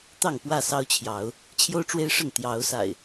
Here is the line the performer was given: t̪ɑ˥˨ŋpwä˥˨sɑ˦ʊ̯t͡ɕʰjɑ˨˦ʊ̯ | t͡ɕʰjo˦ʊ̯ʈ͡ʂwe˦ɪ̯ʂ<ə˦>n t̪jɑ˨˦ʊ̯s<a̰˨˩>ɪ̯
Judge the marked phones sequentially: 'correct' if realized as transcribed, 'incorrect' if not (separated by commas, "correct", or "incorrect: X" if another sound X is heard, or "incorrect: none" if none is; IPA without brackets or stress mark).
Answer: incorrect: ə˥˨, correct